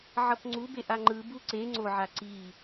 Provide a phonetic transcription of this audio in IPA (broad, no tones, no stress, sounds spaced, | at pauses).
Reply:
ʕ ʌ p ŋ͡ǀ u b e ʔ a ŋ͡ǃ ɯ b u ǀ e ŋ͡ǀ o ʕ a ǀ i